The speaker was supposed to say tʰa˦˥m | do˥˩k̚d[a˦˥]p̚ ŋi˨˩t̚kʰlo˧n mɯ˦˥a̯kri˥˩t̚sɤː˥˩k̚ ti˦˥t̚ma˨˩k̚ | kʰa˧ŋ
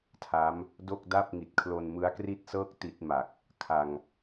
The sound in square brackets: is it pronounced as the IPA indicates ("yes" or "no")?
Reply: no